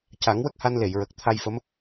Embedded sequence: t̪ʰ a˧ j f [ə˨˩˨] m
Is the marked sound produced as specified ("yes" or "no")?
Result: no